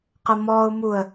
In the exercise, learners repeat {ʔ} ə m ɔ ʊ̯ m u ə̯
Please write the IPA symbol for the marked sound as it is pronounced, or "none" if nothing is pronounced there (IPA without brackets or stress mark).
q